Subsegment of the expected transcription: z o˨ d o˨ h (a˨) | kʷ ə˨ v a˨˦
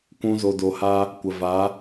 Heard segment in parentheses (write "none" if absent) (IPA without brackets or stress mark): a˧